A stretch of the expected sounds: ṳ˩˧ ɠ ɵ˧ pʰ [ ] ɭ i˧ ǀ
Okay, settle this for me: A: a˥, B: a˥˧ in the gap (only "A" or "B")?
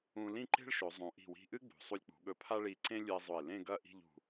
A